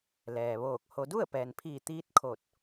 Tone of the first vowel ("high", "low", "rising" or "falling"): low